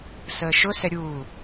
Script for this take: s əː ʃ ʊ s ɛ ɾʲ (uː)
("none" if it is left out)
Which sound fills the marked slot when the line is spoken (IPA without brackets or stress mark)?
uː